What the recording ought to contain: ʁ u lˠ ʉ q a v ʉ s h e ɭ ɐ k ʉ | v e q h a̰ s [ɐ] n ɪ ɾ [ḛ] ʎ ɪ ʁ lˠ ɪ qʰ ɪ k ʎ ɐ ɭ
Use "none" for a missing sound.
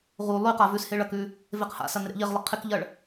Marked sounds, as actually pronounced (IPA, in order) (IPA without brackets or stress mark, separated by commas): ɐ, ḛ